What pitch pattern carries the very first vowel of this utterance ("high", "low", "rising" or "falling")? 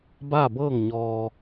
falling